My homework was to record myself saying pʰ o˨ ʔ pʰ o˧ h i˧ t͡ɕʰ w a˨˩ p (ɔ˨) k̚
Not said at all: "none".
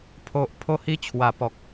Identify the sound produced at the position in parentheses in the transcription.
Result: ɔ˨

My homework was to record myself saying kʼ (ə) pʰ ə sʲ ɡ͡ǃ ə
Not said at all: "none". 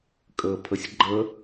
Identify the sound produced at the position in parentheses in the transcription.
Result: ə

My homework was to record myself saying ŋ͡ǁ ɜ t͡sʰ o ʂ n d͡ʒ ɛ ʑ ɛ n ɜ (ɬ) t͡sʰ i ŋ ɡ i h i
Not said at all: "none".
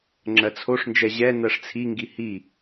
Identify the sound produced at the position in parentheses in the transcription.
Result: ʂ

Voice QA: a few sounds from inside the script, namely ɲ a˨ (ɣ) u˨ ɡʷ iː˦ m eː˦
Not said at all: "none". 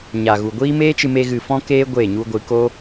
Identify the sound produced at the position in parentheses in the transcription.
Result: ɣ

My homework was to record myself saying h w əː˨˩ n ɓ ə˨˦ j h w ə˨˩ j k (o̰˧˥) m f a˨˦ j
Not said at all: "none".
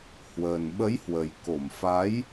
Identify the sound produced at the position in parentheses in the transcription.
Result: o˧˩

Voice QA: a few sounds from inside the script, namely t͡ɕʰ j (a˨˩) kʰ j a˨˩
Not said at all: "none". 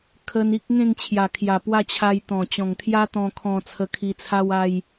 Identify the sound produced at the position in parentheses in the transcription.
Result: a˨˩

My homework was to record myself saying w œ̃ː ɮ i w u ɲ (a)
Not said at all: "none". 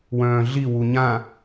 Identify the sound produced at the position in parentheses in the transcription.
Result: ã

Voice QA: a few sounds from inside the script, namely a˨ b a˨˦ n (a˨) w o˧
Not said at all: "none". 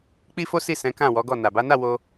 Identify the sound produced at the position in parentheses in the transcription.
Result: a˦˨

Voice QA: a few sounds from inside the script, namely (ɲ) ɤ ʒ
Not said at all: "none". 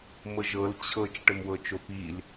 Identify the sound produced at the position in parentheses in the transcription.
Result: m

